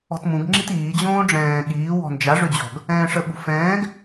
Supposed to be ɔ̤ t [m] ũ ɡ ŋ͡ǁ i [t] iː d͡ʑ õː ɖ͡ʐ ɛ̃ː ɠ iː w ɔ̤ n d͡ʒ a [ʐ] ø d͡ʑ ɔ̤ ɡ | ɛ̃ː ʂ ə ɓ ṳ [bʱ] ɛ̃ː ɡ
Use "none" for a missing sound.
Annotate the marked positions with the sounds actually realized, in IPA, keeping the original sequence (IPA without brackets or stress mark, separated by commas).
m, t, ʐ, f